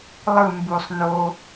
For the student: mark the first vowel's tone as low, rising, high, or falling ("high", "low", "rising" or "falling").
falling